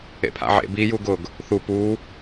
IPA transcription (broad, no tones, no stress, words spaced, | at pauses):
ḛpʰa̰ʕḛ bi juɡʊɡ | θu pu